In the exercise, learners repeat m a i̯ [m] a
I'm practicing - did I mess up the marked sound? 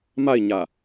yes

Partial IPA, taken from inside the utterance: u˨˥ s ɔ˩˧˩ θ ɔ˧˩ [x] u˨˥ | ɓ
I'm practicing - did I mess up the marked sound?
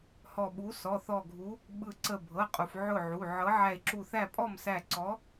yes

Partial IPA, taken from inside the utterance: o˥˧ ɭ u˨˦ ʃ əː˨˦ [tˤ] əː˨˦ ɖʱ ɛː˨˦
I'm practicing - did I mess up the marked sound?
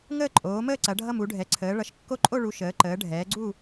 yes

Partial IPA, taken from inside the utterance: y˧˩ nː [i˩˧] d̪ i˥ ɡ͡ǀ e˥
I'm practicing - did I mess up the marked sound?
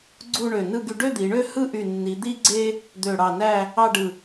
no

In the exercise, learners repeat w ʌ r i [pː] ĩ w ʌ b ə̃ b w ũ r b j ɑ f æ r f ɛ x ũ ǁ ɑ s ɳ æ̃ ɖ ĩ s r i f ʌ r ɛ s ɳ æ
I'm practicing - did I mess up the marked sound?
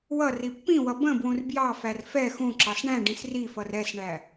no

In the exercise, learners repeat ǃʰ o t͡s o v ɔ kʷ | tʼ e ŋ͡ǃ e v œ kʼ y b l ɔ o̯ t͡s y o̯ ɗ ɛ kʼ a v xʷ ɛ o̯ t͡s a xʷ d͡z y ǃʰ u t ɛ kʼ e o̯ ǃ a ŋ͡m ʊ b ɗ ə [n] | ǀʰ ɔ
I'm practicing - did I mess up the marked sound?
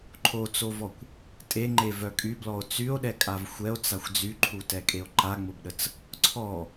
yes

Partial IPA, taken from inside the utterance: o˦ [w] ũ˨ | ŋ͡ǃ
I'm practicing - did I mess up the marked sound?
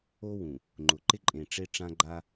no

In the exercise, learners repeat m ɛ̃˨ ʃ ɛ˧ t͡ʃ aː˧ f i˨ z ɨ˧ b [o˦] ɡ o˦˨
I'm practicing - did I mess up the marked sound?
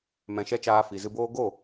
yes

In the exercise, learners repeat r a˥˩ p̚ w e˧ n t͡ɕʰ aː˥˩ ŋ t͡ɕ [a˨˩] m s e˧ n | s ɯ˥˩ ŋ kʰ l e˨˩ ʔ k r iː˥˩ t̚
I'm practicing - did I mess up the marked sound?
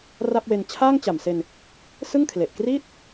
no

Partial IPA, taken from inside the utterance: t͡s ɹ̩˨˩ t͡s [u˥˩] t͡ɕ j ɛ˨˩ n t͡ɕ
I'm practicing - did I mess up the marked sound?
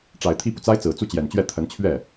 no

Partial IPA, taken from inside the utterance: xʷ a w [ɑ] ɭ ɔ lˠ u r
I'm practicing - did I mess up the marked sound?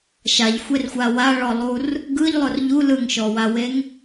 yes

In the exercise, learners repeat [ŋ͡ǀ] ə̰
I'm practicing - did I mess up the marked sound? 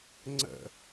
no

